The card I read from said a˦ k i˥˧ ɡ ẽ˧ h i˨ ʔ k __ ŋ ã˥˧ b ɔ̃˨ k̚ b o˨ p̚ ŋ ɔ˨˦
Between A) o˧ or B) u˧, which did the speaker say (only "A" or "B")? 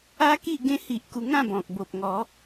B